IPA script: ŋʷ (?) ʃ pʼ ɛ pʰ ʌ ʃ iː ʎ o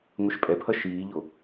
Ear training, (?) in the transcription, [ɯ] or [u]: ɯ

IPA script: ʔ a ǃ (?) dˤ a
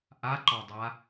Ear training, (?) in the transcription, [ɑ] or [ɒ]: ɒ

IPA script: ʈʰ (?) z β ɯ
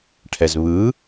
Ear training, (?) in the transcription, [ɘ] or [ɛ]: ɛ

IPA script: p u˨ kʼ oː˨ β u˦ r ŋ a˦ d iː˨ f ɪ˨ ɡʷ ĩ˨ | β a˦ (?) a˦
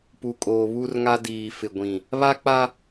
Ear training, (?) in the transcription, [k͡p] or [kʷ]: k͡p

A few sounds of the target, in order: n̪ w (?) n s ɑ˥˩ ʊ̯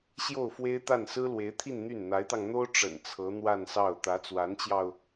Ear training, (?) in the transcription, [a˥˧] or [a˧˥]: a˥˧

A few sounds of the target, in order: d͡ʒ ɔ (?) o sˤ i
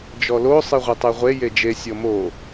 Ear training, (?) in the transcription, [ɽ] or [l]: l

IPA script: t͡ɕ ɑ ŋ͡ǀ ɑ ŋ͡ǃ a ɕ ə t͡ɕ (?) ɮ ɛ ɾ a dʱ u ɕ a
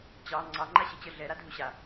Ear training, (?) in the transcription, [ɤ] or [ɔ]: ɤ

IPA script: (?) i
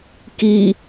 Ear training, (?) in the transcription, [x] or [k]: k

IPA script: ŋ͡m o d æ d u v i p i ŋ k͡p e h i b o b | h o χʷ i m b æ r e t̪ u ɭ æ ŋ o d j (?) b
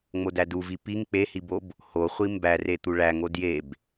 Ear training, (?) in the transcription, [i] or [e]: e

